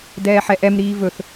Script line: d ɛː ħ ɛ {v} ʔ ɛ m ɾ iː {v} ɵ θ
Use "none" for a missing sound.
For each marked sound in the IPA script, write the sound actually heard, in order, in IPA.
none, v

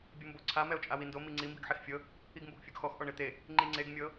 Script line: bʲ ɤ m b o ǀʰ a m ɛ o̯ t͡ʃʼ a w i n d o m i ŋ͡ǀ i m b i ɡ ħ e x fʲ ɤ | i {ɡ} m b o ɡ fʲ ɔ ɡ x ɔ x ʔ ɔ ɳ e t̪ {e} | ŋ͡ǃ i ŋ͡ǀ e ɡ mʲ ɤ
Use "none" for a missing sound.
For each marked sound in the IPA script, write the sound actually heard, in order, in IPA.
ɡ, e

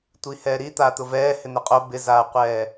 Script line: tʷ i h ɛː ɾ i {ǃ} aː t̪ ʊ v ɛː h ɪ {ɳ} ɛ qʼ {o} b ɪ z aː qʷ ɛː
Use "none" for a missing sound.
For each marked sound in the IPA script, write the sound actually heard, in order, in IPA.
t̪, n̪, o

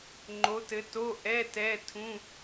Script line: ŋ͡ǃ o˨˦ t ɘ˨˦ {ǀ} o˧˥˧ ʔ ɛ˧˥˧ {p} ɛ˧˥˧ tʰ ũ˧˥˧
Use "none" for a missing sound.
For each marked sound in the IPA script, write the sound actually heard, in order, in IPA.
t, t

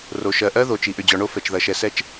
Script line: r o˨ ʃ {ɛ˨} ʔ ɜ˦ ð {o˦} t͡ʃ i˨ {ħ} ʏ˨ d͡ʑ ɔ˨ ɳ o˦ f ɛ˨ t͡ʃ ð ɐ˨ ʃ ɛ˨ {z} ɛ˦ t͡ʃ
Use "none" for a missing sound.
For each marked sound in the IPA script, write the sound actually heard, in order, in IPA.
ɜ˨, o˨, ʔ, s

